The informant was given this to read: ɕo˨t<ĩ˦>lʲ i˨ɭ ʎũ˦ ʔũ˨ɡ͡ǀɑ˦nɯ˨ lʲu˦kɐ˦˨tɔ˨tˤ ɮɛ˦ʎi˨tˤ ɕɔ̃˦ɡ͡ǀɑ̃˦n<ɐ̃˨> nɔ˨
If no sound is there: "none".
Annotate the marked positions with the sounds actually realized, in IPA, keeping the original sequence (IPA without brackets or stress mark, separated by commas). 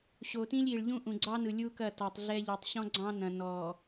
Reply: ĩ˦, ɐ̃˨